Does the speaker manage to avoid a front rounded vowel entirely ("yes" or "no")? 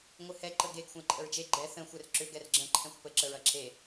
no